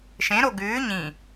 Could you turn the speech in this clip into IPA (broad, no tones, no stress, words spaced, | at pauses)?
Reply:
ʃẽɾo ɡʉː ɲĩ